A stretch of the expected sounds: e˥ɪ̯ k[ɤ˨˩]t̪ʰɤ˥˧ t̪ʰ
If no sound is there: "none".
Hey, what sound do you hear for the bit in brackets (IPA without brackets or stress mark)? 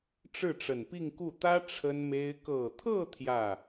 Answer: ɤ˨˩